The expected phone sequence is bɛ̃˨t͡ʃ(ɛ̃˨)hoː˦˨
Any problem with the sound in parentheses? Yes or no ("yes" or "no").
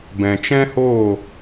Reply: yes